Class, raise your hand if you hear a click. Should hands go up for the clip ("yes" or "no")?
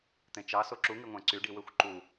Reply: yes